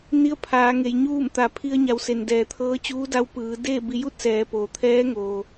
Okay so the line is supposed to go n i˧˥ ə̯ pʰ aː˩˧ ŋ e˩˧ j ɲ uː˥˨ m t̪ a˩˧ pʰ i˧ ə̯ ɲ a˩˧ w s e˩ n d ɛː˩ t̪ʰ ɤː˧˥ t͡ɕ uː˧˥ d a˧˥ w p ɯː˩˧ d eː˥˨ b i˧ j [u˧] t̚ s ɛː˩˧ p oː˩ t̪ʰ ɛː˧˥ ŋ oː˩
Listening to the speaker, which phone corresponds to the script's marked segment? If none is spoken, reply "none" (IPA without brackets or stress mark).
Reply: u˥˨